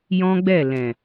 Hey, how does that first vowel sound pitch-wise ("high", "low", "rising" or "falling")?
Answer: high